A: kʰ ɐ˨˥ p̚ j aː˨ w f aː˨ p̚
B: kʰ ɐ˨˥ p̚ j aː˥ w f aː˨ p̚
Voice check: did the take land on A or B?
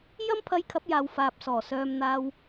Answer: A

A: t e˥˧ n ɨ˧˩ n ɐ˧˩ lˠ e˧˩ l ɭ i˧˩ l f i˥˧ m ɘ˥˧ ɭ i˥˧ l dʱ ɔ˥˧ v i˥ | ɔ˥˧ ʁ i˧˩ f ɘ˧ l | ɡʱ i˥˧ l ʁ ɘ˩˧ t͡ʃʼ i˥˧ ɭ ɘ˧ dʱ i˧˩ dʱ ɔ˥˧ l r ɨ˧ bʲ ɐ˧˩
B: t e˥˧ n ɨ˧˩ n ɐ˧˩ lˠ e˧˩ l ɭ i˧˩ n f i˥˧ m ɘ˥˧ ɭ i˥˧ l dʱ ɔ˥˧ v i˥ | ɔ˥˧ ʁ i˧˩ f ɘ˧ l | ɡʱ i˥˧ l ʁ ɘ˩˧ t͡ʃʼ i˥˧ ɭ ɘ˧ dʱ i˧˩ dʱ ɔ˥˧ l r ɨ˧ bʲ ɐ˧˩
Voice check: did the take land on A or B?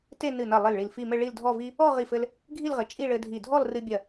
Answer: A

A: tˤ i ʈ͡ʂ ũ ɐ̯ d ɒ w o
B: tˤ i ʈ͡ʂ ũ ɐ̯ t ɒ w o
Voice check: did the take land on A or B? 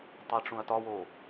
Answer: B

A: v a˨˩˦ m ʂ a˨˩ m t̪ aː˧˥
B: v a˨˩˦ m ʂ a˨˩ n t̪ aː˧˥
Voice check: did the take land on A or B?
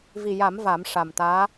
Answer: A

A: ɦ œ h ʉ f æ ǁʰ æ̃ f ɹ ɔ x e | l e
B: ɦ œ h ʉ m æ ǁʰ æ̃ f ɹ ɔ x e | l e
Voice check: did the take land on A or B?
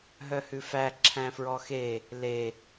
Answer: A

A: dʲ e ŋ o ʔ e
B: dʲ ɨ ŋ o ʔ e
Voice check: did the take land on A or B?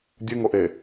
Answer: B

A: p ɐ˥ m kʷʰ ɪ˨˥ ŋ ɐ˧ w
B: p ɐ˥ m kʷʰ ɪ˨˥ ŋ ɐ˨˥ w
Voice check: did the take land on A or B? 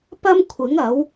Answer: B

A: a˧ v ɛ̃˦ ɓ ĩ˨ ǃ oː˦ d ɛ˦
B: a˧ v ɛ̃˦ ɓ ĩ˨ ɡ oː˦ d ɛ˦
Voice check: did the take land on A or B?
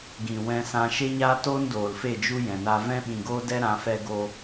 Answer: B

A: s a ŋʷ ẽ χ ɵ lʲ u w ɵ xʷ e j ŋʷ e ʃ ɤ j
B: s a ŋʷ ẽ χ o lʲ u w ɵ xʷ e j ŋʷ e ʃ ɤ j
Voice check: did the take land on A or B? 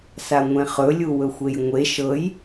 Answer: A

